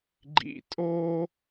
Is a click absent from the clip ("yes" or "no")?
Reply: no